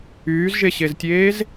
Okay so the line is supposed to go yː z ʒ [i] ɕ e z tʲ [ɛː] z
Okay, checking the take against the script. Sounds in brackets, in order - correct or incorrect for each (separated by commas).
incorrect, incorrect